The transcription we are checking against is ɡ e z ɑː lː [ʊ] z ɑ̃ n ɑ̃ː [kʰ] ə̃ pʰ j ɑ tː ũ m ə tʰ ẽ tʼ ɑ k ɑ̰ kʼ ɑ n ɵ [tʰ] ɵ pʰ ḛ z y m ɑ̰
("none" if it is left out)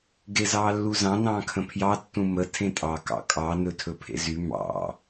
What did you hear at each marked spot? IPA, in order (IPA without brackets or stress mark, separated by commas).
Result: u, kʰ, tʰ